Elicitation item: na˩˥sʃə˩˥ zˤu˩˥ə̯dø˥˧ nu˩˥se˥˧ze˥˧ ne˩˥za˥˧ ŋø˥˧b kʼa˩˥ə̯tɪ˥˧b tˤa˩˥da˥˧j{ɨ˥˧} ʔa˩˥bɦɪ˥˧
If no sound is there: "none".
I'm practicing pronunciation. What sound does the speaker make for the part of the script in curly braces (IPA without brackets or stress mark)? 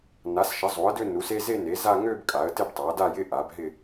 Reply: ɪ˥˧